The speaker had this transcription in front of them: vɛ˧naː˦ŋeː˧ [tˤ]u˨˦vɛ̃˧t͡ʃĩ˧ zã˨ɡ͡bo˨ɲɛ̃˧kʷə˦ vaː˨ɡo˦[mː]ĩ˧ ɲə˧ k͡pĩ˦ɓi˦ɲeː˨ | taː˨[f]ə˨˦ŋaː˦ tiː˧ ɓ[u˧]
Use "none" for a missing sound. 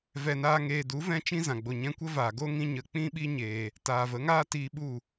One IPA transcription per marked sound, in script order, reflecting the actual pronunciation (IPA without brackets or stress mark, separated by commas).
d, ŋ, v, u˦˨